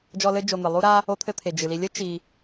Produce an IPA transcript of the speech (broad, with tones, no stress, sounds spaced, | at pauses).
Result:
d͡ʒ ɔ˦ l ɘ˥ d͡ʒ o˨ n̪ ɨ˩ lˠ u˥ ɾ a˥ | o˦ t̪ʰ ɘ˦ t̪ʰ e˩ d͡ʒ ɨ˩ l i˨ lʲ ɘ˥ t͡ʃ i˨